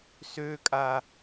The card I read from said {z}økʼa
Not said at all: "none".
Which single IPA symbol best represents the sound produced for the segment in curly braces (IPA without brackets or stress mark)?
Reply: s